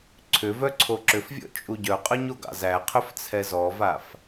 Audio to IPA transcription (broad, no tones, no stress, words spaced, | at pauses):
ǀʰʏvœ ǀʰoǁʏfvʲɔ̰ t͡ʃʼuɟœqʼœɲ oɡɑ̰zæqʰʏf t͡sʰɛzɔvaf